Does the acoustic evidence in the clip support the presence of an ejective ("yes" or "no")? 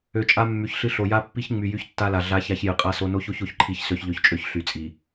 yes